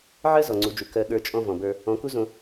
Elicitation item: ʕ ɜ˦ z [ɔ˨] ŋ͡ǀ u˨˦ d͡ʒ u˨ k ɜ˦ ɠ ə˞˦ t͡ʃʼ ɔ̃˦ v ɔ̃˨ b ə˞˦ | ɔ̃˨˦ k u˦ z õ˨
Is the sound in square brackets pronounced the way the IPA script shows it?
yes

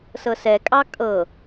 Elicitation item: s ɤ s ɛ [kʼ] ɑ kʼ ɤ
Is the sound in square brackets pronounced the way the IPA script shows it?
yes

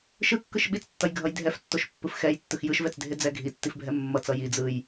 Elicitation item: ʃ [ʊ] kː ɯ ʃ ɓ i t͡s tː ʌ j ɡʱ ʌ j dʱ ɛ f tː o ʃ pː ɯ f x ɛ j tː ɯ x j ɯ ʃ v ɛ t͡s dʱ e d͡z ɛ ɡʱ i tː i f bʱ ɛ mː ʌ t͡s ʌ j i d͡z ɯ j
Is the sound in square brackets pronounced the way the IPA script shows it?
no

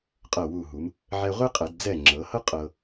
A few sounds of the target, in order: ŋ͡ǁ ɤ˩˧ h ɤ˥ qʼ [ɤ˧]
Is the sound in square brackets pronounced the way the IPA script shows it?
yes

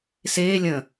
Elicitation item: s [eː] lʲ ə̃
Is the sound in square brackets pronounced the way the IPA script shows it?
yes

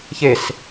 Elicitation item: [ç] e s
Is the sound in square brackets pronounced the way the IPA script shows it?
yes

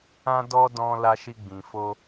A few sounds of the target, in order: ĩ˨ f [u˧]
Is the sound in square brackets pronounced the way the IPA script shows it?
no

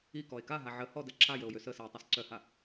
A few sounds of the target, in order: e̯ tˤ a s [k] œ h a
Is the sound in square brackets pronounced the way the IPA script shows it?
no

